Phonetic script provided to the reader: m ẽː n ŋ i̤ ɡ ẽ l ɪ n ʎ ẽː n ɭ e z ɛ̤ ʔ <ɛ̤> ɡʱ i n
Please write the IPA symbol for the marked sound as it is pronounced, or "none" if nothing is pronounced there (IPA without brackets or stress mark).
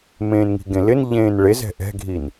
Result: ɛ̤